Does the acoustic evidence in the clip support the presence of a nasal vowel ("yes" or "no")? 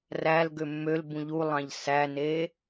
yes